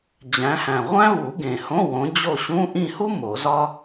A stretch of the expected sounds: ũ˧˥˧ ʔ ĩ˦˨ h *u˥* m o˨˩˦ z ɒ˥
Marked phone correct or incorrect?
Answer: correct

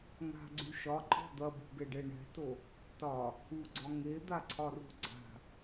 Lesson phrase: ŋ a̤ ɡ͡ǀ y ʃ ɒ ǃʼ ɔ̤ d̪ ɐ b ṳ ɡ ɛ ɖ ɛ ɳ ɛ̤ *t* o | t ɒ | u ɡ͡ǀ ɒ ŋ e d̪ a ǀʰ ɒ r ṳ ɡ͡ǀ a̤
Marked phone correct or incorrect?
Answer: correct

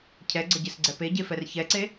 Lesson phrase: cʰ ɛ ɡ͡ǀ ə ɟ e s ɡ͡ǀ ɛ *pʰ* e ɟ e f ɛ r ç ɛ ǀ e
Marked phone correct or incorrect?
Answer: incorrect: p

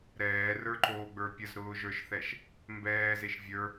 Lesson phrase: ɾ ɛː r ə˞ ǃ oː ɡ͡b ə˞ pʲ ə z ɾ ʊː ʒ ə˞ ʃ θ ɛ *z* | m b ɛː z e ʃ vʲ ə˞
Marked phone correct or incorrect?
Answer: incorrect: ʃ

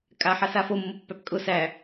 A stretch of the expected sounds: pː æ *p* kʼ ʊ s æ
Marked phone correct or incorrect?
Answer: correct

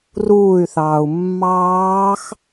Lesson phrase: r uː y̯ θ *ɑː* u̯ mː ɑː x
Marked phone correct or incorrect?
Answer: correct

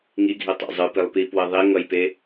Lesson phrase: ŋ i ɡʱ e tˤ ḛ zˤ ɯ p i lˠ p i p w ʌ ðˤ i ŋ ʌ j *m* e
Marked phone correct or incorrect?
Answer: incorrect: p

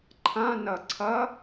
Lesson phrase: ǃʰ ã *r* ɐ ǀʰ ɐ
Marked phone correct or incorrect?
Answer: incorrect: n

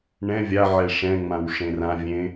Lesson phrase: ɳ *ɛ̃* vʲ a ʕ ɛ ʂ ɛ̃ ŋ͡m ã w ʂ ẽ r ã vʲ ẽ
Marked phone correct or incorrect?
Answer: correct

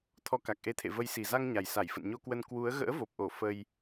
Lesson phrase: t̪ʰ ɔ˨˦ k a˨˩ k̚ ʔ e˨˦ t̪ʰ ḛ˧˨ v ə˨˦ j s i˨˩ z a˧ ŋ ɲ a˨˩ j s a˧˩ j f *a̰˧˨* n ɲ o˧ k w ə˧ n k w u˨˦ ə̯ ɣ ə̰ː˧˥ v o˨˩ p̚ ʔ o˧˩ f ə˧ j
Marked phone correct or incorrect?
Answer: incorrect: ə̰˧˨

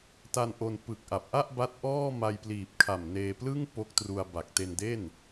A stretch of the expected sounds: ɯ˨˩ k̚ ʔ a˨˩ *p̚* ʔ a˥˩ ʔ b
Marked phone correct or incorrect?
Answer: correct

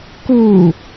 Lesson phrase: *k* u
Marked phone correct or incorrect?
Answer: correct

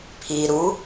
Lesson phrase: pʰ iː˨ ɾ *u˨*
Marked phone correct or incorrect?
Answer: incorrect: u˨˦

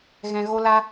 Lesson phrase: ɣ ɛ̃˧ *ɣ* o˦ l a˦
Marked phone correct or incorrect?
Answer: correct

